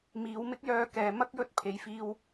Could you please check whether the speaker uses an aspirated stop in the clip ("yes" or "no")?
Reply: yes